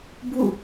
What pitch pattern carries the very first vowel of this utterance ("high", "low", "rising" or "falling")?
falling